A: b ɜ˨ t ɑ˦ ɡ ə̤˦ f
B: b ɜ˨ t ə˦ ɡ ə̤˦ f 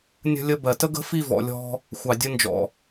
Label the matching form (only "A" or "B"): B